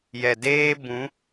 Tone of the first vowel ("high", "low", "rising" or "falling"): low